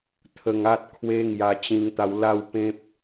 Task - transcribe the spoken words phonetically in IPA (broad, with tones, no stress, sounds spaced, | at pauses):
t̪ʰ ə˧ ŋ a˦ t̚ kʰ w e˦ ŋ j a˧ t͡ɕ ĩ˧ ŋ t̪ a˧ w l a˥˧ w p ẽ˦ p̚